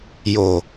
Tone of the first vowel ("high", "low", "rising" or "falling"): low